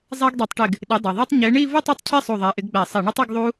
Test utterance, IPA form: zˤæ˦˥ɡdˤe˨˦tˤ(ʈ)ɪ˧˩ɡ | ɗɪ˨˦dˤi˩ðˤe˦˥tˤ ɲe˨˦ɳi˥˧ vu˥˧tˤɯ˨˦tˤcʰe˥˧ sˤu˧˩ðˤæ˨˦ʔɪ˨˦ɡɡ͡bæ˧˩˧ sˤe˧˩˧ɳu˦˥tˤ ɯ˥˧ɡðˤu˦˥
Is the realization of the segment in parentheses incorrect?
no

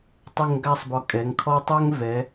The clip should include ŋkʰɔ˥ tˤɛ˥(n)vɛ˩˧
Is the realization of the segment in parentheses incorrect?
yes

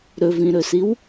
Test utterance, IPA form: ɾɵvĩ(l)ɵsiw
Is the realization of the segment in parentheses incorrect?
yes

